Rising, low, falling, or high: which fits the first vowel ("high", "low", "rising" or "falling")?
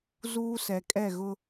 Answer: high